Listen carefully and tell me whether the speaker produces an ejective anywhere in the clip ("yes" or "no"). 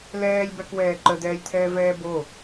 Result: no